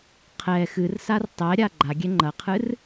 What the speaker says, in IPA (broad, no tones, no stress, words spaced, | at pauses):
qʰɛ xɨrsar tˤɛɾʲa ɡ͡ǃaɡʲɛ ŋ͡ǃɐqʰɨr